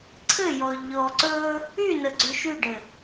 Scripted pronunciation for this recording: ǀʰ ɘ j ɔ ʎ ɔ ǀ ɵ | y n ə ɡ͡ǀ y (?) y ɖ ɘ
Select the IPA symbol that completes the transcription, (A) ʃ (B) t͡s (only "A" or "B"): A